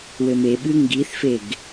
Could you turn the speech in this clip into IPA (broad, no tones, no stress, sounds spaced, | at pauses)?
w ɘ m e ɓ ɨ ŋ ɡ i θ f e ɡ